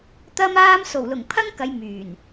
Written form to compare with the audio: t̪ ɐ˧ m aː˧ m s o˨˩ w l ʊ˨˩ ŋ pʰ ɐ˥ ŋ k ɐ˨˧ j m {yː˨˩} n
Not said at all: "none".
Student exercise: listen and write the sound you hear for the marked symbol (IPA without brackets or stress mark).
yː˨˩